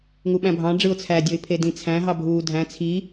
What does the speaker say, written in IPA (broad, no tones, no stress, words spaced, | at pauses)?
ŋuɓæ̃bʱɑ̃ ɖ͡ʐɯʊ̯t͡sʰæ dʲoɪ̯pʰedĩt͡sʰæ̃ ɦɑbʱuːdʱæ̃ t͡sʰi